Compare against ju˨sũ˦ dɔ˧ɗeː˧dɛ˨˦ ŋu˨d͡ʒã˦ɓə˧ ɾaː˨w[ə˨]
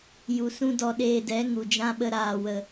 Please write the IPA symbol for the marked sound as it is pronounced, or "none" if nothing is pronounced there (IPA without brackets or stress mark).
ə˨